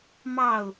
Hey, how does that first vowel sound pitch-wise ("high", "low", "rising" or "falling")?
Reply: falling